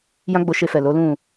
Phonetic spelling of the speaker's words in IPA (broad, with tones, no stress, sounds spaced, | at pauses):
j ã˦ ɡ͡b o˧ ʃ e˧ f ɛ˨ l o˨˦ l ũ˦˨